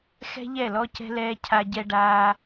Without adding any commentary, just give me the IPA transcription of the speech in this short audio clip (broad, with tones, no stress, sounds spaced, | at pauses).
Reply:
x ɛ̤˦ ʎ ɛ˦˨ l ɔ˦ c ɛ̤˦ l ɛː˦ cʰ a˦ ɟ ɛ˦ ɖ aː˦